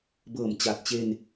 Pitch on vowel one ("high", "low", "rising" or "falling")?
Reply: low